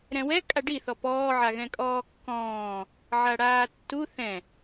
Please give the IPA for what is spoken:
ɾ ɛ̃ w ɛ kʼ a ɖ i θ ɔ p ɔː ʕ a ɣ ɛ̃ kʼ ɔː kː ɔ̃ː | ʕ a ɽ aː tː u θ ɛ̃

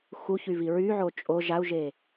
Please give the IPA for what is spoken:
x u ç y v i ɹ y ʕ o t͡ʃʼ o ʒ a u̯ ʒ e

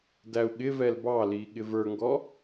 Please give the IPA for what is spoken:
d æ u̯ ɠ ɪ v ɛ l b ɑ l i ɠ ɪ v ə˞ ŋ ɡ ɔ

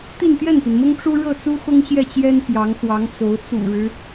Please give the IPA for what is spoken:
t̪ i˥˧ n t̪ j ɛ˥˩ n p i˩ n m ʊ˥ ŋ ʈ͡ʂ u˥ ɻ ɤ˥˩ t͡s u˥ x ʊ˥ ŋ ɕ j ɛ˥˩ t͡ɕ j ɛ˥ n p j ɑ˧˥ ŋ s w ɑ˧˥ ŋ t͡s o˧˥ ʊ̯ t͡s ṵ˨˩ ɻ ɻ̩˦

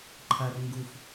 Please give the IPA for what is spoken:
ǃʰ ɐ r ŋ ɡ u f

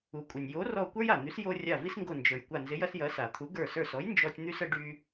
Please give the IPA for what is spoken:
u˩ kʷʼ ə˩ nʲ j o˨˥ r ɔ˧˩ kʷ ə˞˦ j a˩ n̪ y˨˥ s j o˦ rʲ a˧˩ v i˦ s ŋ ɡ o˧˩ n d͡ʒ ə˞˩ j kʷ a˧˩ n z ɪ˨˥ j ɐ˦ s j ɐ˨˥ s a˩ t̪ʰ u˨˥ ɡ ə˞˧˩ s ə˞˧˩ s ɔ˨˥ j n d͡ʒ ɔ˦ tʲ n̪ y˦ s ə˨˥ ɖ y˦

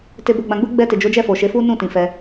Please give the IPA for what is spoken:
t e˨ b o˨ ɡ͡b ã˨ ɡ͡b u˧ ɡ͡b ɛ˧ t e˨ d͡ʒ o˨˦ d͡ʒ ɛ˦˨ f o˨ ʃ e˨˦ f u˦ n ũ˦˨ t ĩ˨ f ɛ˧

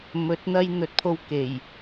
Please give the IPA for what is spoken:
m ɵ˨˥ t̚ n̪ ɐ˥ j n̪ ɵ˨˥ t̚ pʰ o˧ w k e˨˩ j

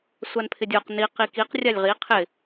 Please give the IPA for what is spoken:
sʷ a n pʰ ɪ dʲ o q n i q i k i q rʲ a lʲ ʁ i qʰ ɪ

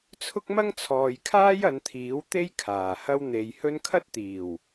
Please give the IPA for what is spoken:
t͡sʰ ʊ˥ k̚ m ɐ˥ ŋ t͡sʰ ɔː˨ j kʰ aː˥ j ɐ˨˧ n t̪ʰ iː˨˥ w t̪ e˥ j kʰ aː˨˩ h ɐ˥ w n̪ e˨ j h ɵ˥ n kʰ ɐ˥ t̚ t̪ iː˨˩ w

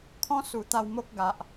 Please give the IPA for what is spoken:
kʰ ɔ̃˦ s u˨˩ t̪ a˧ w m o˦ k̚ ɡ a˨ ʔ

